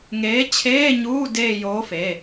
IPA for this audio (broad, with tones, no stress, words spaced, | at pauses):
ŋeː˨˥t͡ɕʰeː˧˥˧ɲuː˧˥˧ de˦˨joː˨˥f e˩˧˩